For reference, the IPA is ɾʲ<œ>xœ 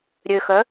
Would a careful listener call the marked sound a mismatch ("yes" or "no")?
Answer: yes